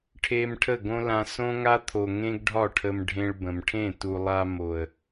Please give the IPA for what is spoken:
ʈʰ e˧ m ʈʰ ə˦˨ ɡ õ˦ l ã˧ s õ˦ ŋ a˦ t̪ʰ o˨ ŋ ẽ˦ ɡ ɖʱ ɒ˦˨ ʈʰ ə˧ m ɖʱ ẽ˧ ɭ b ə̃˨ m ʈʰ ẽ˦˨ t u˨ lˠ a˧ m o˨ ə̯

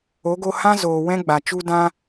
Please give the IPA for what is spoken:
o˨˦ ɡ o˧ h ã˦ z oː˨ w ɛ̃˦ ɡ͡b a˨ t͡ʃ u˦ d ã˦

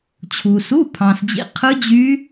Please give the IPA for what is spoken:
t͡ɕʰ u˨ s u˧˥˧ pʰ ɑ̃˨ s d͡ʑ ḭ˧˥˧ qʰ ɯ˦˥ d͡ʑ y˦˥

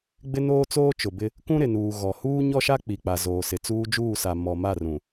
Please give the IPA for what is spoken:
ɡ͡b ɪ˦ n oː˦ t͡s oː˦ t͡ʃ ʊ˨ b ɪ˦ | k ũ˦ ɾ ɪ˨ n uː˨ ɣ ɔ˨ h uː˦ ɲ ɔ˦ ʃ a˦ k͡p i˨ k͡p a˨ z oː˨ s ɪ˨ t͡s uː˦ d͡ʒ uː˦˨ s a˨ m ɔ˨ m a˦˨ r ũ˨

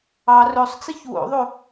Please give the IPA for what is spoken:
ɑ r ɵ sˤ t͡s i ç w o̰ ðˤ o

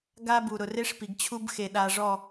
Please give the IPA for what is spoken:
ɡ a˦ b u˨ ɾ ʊ˨ r e˦ ʂ p i˨ ɡ t͡ɕʰ u˦ b x e˨ ɗ a˨ ʐ ɔ˦˨

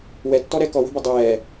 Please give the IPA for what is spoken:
w ɛ tː ɔ ɾ ɛ k ɔ w ə̤ b ə dˤ ɛː

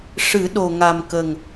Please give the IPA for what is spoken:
ʂ ɨ˨˩˦ ɗ o˨˩ ŋ a˨˩ m k ə˨˩ ŋ

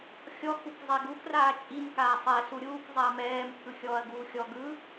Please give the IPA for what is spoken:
xʲ ɔ x u k zˤ ɛ ɡ u k r aː t͡ʃʼ i m k aː sˤ ɛ s u ɾʲ uː k zˤ ɛ ɐ̯ m ɛː m pʰ ɯ xʲ ɔː ɐ̯ ɡ uː xʲ ɔ ɡ ɯ

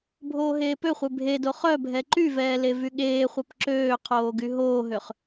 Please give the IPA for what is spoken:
bʱ oː ɦ eː p ø χʷ e bʱ e d o χ œ bʱ ɛ ǃ y v ɛː l e v y ɠ eː χʷ œ p ǁ øː qʰ oː ɡ y ɦ oː ɦ ø χ

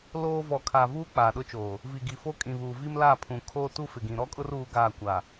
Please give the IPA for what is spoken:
l oː˦ v ɔ˨ kʰ a˨ v uː˦ k͡p aː˨ ɗ ʊ˦ t͡ʃ oː˨ | v i˨ ɡ i˨ f o˦ kʼ ĩ˨ β uː˨ v i˦ m l aː˦˨ pʰ ũ˨ kʰ oː˦ t u˦ f ɪ˨ ɡ ĩ˨ ɾ ɔ˦ kʼ ʊ˦ r uː˦ ɡ aː˦˨ kʷ a˨

